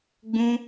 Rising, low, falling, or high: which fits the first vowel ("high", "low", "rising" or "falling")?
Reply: high